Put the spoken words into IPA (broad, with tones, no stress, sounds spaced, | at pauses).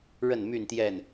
ɻ ə˥˨ n m y˥˨ n t̪ j ɛ˥˨ n